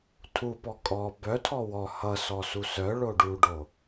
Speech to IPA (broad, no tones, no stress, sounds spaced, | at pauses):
tʰ u p ɔ kʼ ɔ b œ tʰ ɔ w ɔ h ʌ s ɔ s u s œ ɭ o ɖ u ɖ o